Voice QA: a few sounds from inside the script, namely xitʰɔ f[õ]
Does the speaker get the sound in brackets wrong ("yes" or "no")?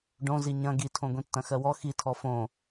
no